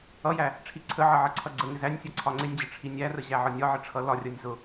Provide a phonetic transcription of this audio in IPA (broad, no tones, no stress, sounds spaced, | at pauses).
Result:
ʌ j æ | ʈ͡ʂʰ i ǀʰ ə ʕ ʌ ʕ ʌ ǀʰ ʌ ɡ͡ǀ ə ŋ ɪ z æ nʲ sʲ ʌ ǀʰ ɒ ŋ͡ǀ ɪ nʲ d͡ʑ ə ʈ͡ʂʰ i nʲ æ r ə ʑ æ ʕ ɒ nʲ ɒ ʕ ə ʈ͡ʂʰ ʌ l ɒ rʲ ʌ nʲ z ʊ